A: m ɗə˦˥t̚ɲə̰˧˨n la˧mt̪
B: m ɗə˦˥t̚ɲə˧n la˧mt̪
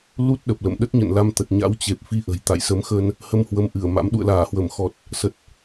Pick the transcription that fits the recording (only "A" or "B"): A